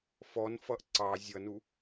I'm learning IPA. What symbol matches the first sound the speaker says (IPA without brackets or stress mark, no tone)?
f